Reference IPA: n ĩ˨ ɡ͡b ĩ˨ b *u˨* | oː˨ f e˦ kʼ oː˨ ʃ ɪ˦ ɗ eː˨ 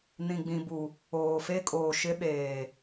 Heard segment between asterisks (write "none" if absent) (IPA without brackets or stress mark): u˨